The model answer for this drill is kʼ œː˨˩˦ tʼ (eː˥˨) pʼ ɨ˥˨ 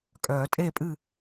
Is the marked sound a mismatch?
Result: no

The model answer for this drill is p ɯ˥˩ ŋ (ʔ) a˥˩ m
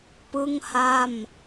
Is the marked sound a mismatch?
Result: yes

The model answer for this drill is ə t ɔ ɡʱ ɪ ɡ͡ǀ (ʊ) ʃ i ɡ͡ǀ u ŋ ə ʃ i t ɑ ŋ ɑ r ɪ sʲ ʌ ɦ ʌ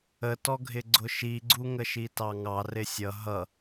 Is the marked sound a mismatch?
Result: no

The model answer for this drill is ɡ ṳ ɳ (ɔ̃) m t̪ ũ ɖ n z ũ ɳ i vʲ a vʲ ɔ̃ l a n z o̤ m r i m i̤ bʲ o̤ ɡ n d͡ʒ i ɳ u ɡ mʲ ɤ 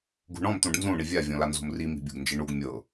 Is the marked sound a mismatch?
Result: no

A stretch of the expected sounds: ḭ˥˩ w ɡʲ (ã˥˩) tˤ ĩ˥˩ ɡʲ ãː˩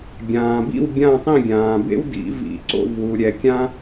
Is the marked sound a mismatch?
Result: no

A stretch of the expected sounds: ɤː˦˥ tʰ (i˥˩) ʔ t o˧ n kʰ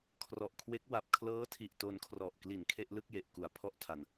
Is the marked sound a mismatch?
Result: yes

